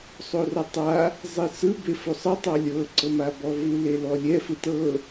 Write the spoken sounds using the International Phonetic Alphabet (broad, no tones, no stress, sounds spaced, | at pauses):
sˤ o r ɔ tˤ a | zˤ i s ɯ b e f o sˤ ɤ tˤ a lʲ ɤ ǀ ɤ m a b ɔ v u l e l ɔ lʲ ɛ f ɯ t ɤ